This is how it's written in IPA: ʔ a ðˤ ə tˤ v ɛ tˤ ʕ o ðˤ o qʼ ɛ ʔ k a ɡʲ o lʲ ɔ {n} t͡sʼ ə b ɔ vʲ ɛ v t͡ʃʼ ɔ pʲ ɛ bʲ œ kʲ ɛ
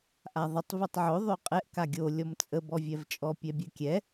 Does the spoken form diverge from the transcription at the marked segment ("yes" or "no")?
yes